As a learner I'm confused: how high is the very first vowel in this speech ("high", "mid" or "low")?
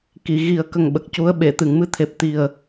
high